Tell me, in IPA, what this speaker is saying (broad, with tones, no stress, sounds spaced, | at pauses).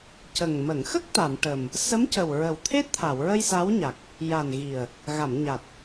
c ə˨˩ ŋ m ə˨˩˨ ŋ x ə˦˥ k̚ t̪ a˨˩˨ m ʈ ə˨˩ m | s ə˧˥ m c ə˨˩ w ɹ ə˨˩ w t̪ʰ e˦˥ t̚ t̪ʰ a˨˩˨ w ɹ ə˧ j s a˧˥ w ɲ a˨˩ k̚ | j a˨˩ n ɣ i˨˩ ə̯ | ɣ a˨˩˨ m ɲ a˨˩ t̚